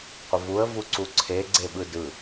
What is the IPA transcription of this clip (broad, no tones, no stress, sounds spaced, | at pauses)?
qʷ ə v u ə̯ v u ǀ u ǀʰ e ɡ͡ǀ e ɓ ɯ d ɯ